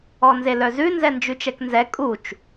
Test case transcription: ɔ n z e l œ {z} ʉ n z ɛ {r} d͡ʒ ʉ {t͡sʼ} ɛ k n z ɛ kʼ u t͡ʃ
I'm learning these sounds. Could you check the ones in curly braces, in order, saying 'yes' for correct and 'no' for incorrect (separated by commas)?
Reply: yes, no, no